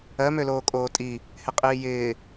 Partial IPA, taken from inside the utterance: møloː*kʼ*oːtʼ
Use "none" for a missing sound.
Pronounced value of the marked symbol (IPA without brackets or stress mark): kʼ